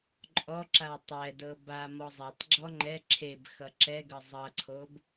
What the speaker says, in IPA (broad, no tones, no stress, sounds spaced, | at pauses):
ǃʼ ɔ ǁ a w tˤ ɛ d ɤ b a m ɔ zˤ a tˤ ɡ͡ǁ ɔ ŋ͡ǃ ɛ ǁʰ e b x ʌ ǁ ɛ ɡ ɤ zˤ ʌ ǀʰ o b